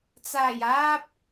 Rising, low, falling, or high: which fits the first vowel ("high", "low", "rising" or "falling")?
low